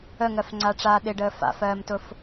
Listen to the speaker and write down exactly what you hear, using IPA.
əŋɜfŋ͡ǀaʈ͡ʂaː ɗɪɖəː fa̰fɜːmtʊf

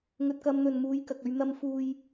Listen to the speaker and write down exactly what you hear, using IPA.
ŋɵ˨t̚kɐ˨˧m n̪ɵ˨nmuː˨˧j kɐ˨k̚ɵ˧ɥn̪ɐ˧m fuː˧j

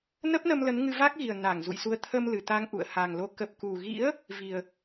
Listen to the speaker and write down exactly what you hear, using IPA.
nə˦˥p̚nə˧m lə˨˦nŋɨ˧va˦˥k̚ɣi˨˩ə̯ na˧˩ŋ zṵ˧˨jsu˧ə̯ t̪ʰə˧m lɨ˨˩ t̪a˧ŋʔṵ˧˨ə̯ ha˨˩ŋlo˨˦ kə˨˩p̚ku˨˩ɣḭ˧˥ə̯ | vi˨˩ə̯

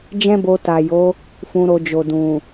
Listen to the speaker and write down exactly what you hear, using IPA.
d͡ʒɛ̃˦bo˧ ta˨jo˨˦ | fũ˧ɾo˧d͡ʒo˨ dũ˨

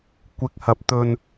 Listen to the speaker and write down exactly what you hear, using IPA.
kʷɪ˨˥k̚hɐ˨p̚ t̪ɵ˧n

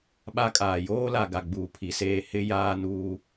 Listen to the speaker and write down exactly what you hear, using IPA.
ɓa˦kʼaː˨ joː˦la˨ ɡa˨ɡ͡buː˨pʰi˨seː˦˨ hɪ˦ jaː˦nuː˦

